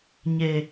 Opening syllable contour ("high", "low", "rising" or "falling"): low